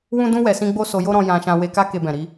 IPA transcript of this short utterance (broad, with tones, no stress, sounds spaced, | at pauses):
w ũ˦ d ũ˦ w ɛ˧ s ĩ˦ ɡ͡b o˦ s o˧ j o˦ ɾ ɔ̃˧ j ã˧ ʃ ã˧ w e˧ k a˦ k e˧ b ɛ̃˨ ɾ i˨˦